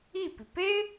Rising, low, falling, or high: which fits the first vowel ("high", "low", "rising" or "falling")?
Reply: falling